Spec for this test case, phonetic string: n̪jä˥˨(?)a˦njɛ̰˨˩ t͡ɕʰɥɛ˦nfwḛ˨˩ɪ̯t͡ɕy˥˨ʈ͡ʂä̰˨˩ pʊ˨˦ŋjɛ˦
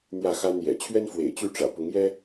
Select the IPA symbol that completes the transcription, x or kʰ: x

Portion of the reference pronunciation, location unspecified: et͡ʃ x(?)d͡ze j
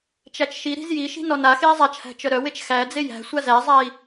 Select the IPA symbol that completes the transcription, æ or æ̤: æ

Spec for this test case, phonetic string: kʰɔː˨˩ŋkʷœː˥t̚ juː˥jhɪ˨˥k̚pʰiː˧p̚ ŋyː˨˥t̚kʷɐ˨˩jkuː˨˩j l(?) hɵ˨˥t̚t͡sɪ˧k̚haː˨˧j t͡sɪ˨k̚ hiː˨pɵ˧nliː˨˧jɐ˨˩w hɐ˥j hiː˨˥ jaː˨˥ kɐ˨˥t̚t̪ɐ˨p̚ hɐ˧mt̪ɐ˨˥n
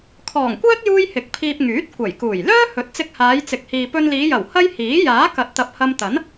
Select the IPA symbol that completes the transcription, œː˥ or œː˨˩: œː˥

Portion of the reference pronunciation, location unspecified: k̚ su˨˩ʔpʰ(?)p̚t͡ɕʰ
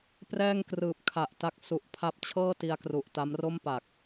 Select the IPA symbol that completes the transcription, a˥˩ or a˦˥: a˦˥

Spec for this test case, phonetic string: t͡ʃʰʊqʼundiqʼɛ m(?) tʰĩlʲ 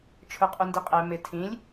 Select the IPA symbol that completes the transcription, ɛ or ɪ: ɪ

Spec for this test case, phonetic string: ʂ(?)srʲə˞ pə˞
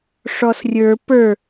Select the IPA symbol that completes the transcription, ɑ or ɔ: ɔ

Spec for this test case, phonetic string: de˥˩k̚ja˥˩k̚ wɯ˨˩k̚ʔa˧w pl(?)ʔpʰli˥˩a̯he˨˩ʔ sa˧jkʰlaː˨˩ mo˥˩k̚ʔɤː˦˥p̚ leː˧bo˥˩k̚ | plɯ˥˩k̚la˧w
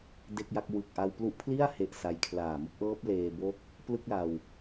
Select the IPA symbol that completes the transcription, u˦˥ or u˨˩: u˦˥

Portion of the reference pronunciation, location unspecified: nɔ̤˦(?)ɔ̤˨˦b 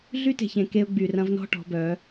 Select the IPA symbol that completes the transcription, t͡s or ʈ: ʈ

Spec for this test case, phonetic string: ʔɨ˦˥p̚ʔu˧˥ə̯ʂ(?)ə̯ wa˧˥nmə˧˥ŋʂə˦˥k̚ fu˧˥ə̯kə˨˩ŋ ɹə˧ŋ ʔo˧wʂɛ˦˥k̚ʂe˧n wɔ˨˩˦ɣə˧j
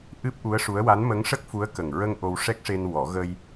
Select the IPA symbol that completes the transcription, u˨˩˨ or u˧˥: u˧˥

